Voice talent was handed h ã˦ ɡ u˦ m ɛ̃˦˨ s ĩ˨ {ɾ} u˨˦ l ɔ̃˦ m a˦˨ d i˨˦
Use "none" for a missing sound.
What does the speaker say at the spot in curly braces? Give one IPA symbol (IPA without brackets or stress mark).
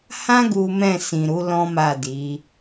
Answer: ɾ